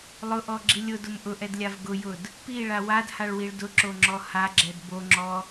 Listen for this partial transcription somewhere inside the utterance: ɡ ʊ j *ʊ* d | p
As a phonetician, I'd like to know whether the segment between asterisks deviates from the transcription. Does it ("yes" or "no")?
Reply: no